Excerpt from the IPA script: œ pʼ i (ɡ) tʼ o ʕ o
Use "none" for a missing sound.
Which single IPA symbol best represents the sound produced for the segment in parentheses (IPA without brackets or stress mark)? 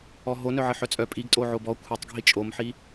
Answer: ɡ